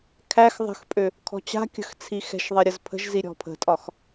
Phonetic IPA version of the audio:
kʰ æ x ðˤ ə̤ x pʼ ø | kʰ ɔ̤ t͡ɕ a̤ kʲ ə̤ x t͡sʰ i x ɛ̤ ʃ ðˤ ɛ ɾʲ ə z pʰ ə̤ ʒ z i ɾʲ ɔ̤ pʰ ə̤ tʼ ɒ x

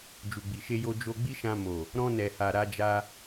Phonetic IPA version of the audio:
d͡ʒ u˨ ɡ͡b i˨ ʃ e˧ j o˧ d͡ʒ o˧ ɡ͡b i˦ ʃ ã˧ m o˨ | ɾ ɔ̃˧ n ɛ˨ h a˨ ɾ a˧ d͡ʒ a˧

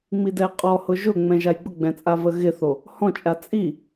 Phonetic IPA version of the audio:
ŋ͡m i d ɛ qʼ ɔ h ʊ ʒ ʊ ŋ͡m ɛ̃ ʒ a j ɡ͡b ʊ ɡ͡b ɛ̃ t͡sʼ a v ə ɣ ɪ θ o | h ɔ̃ t͡ʃʼ a t͡sʼ i

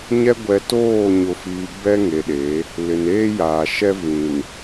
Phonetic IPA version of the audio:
ɲ ɛ˦ ɡʷ ɛ˨ t oː˦˨ ɲ ʊ˨ f iː˨ b ɛ˦ ŋ e˨ ɗ e˨˦ | l ɪ˨ n eː˦ j aː˨ ʃ ɛ˦ v ĩ˨ n

